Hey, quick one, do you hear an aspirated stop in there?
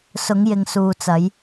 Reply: no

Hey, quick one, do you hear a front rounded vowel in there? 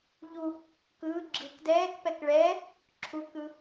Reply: no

